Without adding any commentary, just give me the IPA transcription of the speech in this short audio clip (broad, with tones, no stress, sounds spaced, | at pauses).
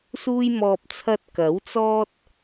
s uː˧ j m ɔː˨ p̚ t͡sʰ ɐ˧ t̚ k ɐ˨˥ w t͡s ɔː˥ t̚